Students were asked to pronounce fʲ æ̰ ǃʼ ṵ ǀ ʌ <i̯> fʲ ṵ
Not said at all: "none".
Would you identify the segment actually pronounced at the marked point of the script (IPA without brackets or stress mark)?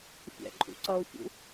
u̯